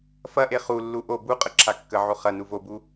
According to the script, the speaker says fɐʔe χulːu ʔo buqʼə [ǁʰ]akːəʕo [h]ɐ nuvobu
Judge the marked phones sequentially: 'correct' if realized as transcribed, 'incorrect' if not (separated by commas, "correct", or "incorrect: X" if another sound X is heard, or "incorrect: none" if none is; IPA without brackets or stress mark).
correct, incorrect: χ